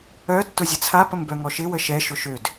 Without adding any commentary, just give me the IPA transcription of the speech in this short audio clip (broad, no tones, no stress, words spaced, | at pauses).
œ tːʊzʲət͡sʰa pəmbœŋɔʃɪ wəʃɛ ʃʊʃød